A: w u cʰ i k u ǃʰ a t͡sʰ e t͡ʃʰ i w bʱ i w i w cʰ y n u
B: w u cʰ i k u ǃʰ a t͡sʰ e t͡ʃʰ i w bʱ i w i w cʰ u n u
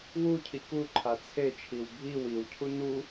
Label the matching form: B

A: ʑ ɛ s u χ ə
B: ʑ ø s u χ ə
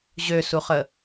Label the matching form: B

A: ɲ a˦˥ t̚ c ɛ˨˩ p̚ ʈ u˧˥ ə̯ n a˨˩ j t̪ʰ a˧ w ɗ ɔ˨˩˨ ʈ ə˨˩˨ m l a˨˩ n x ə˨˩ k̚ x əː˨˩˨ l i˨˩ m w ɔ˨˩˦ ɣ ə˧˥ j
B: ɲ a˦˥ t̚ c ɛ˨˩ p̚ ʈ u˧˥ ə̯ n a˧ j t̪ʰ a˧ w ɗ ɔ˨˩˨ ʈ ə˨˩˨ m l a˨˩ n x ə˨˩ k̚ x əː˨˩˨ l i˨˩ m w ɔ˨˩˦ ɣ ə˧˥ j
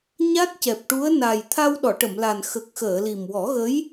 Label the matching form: A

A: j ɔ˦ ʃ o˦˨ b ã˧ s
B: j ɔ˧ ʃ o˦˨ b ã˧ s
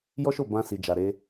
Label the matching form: A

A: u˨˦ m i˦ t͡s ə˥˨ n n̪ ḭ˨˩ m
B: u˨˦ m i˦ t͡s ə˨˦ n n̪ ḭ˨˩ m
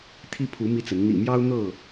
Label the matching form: B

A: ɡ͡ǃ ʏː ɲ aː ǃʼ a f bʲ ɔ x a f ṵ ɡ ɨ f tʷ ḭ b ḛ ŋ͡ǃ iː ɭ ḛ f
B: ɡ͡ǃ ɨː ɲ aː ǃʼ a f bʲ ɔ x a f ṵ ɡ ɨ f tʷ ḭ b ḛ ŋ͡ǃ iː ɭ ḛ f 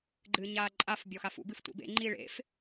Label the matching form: B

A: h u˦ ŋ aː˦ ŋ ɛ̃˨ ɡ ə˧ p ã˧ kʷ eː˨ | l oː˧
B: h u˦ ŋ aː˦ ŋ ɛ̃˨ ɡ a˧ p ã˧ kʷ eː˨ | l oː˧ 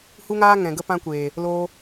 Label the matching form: A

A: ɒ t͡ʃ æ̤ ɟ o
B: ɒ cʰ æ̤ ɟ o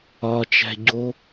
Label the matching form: A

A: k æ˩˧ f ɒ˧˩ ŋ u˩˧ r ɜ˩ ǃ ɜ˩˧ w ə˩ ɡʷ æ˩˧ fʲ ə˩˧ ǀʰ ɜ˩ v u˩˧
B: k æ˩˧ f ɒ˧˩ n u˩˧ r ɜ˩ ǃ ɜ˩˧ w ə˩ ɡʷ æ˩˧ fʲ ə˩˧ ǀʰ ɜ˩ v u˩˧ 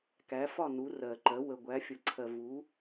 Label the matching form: B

